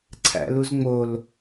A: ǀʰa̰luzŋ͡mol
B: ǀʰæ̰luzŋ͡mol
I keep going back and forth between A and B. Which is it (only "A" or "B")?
B